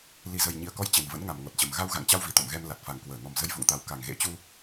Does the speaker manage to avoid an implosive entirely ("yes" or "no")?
yes